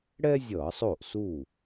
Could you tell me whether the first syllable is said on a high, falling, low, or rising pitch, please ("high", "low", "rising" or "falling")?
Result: high